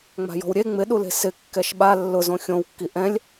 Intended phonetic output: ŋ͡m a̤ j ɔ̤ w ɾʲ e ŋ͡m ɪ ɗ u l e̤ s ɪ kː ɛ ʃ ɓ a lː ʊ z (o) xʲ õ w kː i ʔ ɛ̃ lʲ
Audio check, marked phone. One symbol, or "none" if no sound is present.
õ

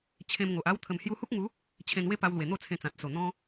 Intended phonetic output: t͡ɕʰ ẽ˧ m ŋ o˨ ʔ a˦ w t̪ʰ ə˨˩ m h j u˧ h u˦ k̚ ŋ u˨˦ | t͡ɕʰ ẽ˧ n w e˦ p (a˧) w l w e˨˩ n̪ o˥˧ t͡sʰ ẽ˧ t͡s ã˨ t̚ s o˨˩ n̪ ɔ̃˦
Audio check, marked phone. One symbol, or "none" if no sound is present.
a˧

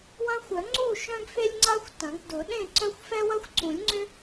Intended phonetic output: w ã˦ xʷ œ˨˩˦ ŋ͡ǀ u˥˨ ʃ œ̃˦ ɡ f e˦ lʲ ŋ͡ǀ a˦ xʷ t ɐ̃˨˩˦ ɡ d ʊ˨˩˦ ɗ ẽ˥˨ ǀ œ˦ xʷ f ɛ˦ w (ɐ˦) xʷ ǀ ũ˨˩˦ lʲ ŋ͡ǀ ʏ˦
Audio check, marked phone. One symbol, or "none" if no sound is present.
ɐ˦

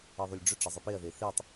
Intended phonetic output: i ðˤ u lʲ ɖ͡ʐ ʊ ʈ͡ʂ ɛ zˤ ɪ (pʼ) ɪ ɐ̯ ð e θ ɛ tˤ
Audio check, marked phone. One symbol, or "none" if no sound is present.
p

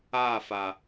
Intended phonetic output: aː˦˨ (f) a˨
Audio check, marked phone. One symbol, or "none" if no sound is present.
f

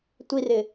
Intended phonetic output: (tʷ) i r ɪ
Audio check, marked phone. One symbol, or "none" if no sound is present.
tʷ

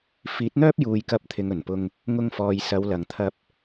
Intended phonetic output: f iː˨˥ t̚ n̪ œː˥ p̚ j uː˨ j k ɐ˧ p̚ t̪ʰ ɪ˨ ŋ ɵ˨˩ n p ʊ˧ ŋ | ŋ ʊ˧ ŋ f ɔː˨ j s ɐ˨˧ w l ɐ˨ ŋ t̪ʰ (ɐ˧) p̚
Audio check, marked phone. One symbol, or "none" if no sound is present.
ɐ˧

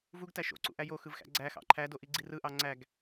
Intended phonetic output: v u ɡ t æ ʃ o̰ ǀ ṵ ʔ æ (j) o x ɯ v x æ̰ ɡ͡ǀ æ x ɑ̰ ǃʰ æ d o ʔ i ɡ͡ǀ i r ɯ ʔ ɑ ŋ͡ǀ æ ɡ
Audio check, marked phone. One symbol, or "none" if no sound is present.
j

